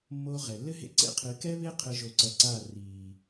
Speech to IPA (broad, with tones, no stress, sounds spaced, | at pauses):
mː oː˧ ʁ ɛ˨ lː ɘ˦ ɦ ḛ˦ ǀ ḛ˦ qʰ ɨ˨˦ k ɛ˦ β e˦ qʰ ɘ˦ ʒ o˧ ǀ ɐ˧ ǀ a˦˨ r iː˨